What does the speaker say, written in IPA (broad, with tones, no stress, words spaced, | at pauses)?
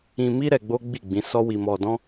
ĩ˧mi˦ ɾɛ˧ɡ͡bo˦ɡ͡bi˦˨ ɡ͡bĩ˨˦sɔ˦wi˧ mɔ˧dɔ̃˦